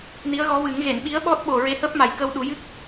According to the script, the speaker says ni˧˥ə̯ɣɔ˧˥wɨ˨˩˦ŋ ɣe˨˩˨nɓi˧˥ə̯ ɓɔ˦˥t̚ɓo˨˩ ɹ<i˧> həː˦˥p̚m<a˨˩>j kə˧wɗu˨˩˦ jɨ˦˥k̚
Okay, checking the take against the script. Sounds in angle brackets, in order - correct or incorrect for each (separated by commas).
incorrect, correct